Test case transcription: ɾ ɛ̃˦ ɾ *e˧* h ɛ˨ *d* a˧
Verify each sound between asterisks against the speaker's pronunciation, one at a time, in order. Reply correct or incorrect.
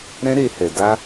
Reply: correct, correct

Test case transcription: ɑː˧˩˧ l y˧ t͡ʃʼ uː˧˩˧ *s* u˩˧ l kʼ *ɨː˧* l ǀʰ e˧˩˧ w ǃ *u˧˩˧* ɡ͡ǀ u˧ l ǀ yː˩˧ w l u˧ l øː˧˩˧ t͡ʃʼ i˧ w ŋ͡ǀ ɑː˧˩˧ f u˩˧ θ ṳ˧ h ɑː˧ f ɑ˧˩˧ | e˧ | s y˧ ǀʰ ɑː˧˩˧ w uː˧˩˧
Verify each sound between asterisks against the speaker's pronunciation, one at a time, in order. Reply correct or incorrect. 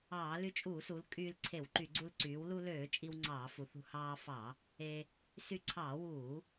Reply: correct, incorrect: yː˧, incorrect: y˧˩˧

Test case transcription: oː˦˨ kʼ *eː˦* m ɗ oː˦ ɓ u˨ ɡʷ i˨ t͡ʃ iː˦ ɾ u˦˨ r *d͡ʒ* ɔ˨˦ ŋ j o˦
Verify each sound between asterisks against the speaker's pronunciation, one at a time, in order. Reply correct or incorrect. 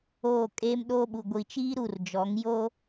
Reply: correct, correct

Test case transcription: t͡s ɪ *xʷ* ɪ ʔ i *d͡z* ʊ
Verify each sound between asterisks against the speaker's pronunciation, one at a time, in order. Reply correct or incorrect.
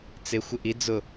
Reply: correct, correct

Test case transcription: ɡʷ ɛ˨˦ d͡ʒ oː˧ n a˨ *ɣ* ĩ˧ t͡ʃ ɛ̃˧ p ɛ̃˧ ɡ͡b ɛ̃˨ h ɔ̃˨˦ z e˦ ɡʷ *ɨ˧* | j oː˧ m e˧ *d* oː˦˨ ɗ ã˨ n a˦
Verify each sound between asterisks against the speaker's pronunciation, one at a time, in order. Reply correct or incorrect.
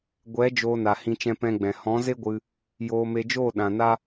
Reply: incorrect: h, correct, incorrect: d͡ʒ

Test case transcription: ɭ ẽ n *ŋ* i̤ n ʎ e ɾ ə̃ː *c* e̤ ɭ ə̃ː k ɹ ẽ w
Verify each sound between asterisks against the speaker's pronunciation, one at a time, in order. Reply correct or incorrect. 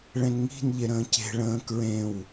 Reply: correct, correct

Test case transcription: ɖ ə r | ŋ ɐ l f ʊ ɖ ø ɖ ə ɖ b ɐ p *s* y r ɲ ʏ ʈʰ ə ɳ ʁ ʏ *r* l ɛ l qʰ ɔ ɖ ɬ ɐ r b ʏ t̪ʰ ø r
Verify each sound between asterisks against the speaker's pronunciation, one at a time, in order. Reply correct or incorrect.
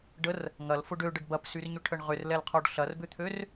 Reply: correct, correct

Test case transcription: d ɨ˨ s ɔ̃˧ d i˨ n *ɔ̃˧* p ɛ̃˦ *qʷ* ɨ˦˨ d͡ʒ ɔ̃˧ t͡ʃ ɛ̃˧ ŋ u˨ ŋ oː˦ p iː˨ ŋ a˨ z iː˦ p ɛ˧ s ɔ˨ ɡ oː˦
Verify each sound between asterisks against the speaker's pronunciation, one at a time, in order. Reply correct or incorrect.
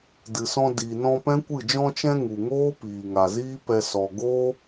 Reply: correct, incorrect: kʷ

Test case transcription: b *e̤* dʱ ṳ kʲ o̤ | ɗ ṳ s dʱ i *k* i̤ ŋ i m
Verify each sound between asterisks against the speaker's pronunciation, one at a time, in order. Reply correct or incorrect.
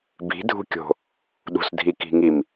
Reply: incorrect: i̤, correct

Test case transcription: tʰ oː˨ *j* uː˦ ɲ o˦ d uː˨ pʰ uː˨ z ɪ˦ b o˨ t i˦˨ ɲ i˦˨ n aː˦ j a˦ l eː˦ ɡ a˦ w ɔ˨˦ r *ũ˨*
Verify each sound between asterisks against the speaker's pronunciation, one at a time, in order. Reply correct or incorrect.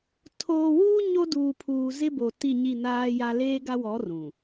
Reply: incorrect: w, correct

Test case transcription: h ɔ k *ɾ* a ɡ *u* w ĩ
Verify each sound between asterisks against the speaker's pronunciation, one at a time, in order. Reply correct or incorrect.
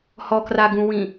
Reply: incorrect: r, incorrect: ũ

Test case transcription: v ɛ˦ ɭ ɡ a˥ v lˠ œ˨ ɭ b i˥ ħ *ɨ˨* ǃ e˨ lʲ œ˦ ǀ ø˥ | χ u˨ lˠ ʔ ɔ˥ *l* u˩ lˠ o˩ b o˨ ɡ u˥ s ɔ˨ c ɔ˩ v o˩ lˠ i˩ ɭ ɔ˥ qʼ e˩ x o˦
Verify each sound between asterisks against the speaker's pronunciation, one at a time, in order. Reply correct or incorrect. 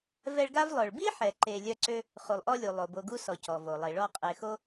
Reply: incorrect: ɛ˨, incorrect: lʲ

